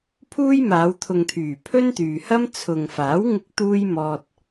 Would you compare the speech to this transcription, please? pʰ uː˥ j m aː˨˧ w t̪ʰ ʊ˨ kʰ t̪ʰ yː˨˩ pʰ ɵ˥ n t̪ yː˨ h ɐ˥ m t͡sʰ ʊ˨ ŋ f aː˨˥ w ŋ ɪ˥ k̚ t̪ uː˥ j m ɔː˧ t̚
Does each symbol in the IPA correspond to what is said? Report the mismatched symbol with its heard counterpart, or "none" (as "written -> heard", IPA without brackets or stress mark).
kʰ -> ŋ